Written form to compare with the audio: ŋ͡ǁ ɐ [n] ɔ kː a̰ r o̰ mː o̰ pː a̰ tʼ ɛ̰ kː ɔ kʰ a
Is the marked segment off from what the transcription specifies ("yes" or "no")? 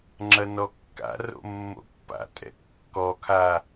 no